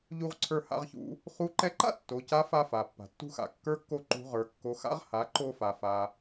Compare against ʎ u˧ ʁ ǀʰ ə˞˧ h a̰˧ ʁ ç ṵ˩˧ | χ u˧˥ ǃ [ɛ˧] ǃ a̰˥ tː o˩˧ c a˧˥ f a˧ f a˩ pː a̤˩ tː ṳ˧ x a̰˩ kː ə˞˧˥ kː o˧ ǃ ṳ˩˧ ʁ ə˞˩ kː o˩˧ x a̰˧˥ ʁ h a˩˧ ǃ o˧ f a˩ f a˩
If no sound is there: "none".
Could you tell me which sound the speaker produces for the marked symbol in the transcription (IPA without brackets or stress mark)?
ɛ˧